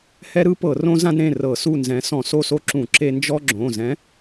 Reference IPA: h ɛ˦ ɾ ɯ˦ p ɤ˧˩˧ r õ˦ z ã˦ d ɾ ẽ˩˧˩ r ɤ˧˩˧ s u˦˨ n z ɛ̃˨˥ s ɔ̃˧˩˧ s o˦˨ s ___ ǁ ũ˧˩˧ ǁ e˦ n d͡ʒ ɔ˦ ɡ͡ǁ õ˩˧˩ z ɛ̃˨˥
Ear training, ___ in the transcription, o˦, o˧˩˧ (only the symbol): o˦